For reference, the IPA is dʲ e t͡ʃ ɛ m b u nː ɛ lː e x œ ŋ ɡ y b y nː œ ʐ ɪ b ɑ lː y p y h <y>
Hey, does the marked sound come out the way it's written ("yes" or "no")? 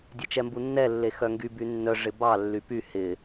no